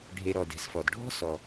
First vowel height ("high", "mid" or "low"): mid